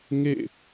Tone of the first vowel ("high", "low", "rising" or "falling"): falling